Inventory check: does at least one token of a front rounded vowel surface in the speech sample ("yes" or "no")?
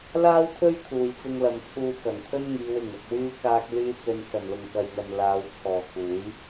yes